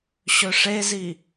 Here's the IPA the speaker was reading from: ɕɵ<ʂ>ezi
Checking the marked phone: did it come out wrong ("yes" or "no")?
no